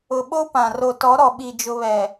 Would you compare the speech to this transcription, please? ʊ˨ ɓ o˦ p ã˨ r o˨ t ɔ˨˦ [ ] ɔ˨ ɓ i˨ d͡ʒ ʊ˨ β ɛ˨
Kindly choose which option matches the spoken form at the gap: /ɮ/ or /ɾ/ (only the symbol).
ɾ